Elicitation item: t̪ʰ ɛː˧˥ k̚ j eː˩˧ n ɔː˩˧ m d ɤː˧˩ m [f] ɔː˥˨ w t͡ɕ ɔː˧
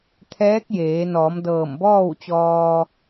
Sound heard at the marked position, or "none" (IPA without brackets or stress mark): b